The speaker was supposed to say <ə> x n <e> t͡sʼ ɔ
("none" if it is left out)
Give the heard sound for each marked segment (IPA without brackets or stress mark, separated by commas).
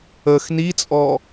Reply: ə, i